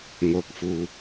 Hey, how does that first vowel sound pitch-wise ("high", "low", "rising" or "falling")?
rising